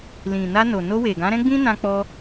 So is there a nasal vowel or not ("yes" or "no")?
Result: yes